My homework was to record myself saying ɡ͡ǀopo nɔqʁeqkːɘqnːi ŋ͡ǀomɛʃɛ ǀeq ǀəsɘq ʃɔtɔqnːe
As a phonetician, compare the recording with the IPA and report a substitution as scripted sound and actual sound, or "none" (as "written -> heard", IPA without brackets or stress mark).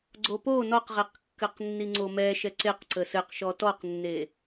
none